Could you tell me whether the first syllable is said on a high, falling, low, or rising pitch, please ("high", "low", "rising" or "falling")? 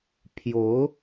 rising